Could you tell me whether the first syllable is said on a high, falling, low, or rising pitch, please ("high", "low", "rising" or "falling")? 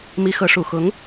rising